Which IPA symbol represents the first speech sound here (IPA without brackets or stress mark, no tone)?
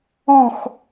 ɔ̃